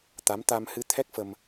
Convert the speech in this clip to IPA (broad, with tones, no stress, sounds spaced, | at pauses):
t̪ a˨˦ m t̪ a˧ m h ɨ˧ t̪ʰ ɛ˦˥ k̚ f ə˧ m